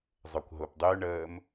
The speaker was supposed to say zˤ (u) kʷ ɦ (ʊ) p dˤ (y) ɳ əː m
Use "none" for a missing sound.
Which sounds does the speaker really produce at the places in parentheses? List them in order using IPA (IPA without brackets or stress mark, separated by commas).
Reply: ø, ʊ, y